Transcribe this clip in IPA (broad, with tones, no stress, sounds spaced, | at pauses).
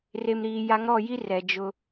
r e˨ m ɾ iː˨ j a˨˦ ŋ ɾ ɔ˦˨ j i˦ r ɛ˨ d͡ʒ ʊ˦